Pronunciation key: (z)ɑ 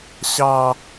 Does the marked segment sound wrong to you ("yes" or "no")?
yes